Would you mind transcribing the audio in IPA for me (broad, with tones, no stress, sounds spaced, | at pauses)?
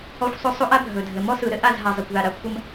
ɔ˦ xʷ sˤ ɵ˦ sˤ o˦ ʔ a˦ bʱ ɵ˨ dʱ ɘ˨ m ɔ˦ s ɯ˨ ɾ ɘ˦ ʔ a˦˨ z ɦ a˨ zˤ ɐ˨ kʷ ð a˨ ɾ a˨ kʷʰ ɐ˦ m